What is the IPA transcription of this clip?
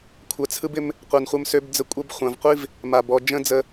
kʷʰ ɜ˨ t͡sʰ ɯ˦ b ɪ˦ m | qʷ ɜ˨ n χʷ ə˧ m s ø˧ b d͡z ə˧ kʷʼ ɜ˧ b χʷ ã˨ v qʷ i˦ v | m a˨ b ɔ˨ d͡ʒ ə̃˦ d͡z ə˧

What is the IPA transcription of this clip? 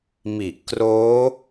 m i˨˩ ʔ k r oː˦˥

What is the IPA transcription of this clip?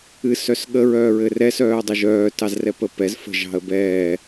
ɨ s œ s ɠ ə ɹ œː ɹ ɘ r ɛ s œː dˤ ə ʒ œː t ɑ z r ɛ p ə p ɛ z f ə̤ ʒ ɑ̤ ə̯ b ɛː

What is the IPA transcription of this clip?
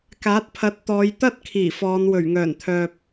k aː˨˥ t̚ pʰ ɐ˨˥ t̚ t̪ ɔː˨˧ j t̪ ɐ˥ t̚ kʰ iː˨˩ f ɔː˨˧ n w ɵ˨˩ ɥ ŋ œː˨˩ n t̪ʰ œː˨ p̚

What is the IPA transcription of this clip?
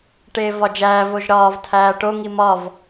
ʈ eː v ɒ d͡ʒ æː v o ʒ ɾ ɒː v tʰ æː ʈ o ŋ i m ɒ v

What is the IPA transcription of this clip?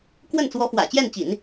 k w ə˥˩ n t͡s w ɔ˧˥ f w ä̰˨˩ t͡ɕ j ɛ˥˩ n t͡ɕ ḭ˨˩˦ n

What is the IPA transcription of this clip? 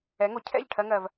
ɛ˩˥ ŋ o˩ cʰ ɛ̰˥˩ ʎ ʈʰ ɜ˧ ŋ ɜ˩ v

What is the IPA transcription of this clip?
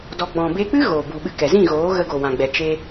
d ɔ˨ ɡ͡b ɔ̃˨ b e˧ k͡p ɨ˦ ɣ oː˨ b u˨ ɓ ɨ˧ k ɛ˨ z ĩ˦˨ ɣ oː˨˦ ɣ ə˧ ɡ o˨ w ã˨ ɡ͡b ɛ˨ t͡ʃ e˧

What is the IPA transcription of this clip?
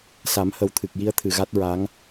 s a˨˩˦ m h ə˨˩ w t̪ʰ ɨ˨˩ k̚ j i˧ ə̯ t̪ʰ ɨ˨˩ ɣ a˦˥ t̚ ɹ a˧˥ ŋ

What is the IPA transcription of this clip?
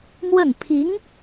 m w ə˥˩ n pʰ i˧˥ ŋ

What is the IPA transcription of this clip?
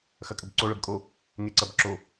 x ɐ kʼ ə b ǀ o ɭ ə b kʼ o | ŋ e ǀ ɐ b ǁ o

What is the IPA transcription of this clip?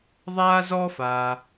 ðˤ aː˥ z ɔ˥ f aː˩

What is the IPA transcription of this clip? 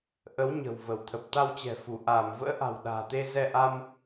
ʔ ə˨˦ w ɲ ə̤˨˩ w v ə˧˩ w t̪ʰ ə˨˩ p̚ t̪ a˧ w t͡ɕ ɛ̤˨˩ f u˧˩ ʔ aː˧˩ m v ə̰ː˧˥ ʔ a̤˨˩ w ɗ a̤ː˨˩ t̪ e˧ z ɛ˧ ʔ a˧ m

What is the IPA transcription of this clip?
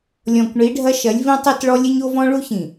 lʲ ɔ̃˨ kʷ ɳ i˨˦ ɖʱ ɐ˦ ʃ ɐ˨˦ lʲ v ĩ˦ tˤ i˦ t ɭ ɔ˦ lʲ ɘ˦ ɲ o˦ v ɔ̃˦ ɭ u˦ ç ĩ˨

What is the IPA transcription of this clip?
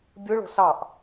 bʲ ɯ ɭ o̤ s ɑ ʔ

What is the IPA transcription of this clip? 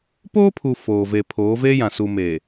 p oː˦ pʰ u˨ f oː˨ v e˨ pʰ oː˨˦ v eː˦ j ã˨ s u˨ m eː˨

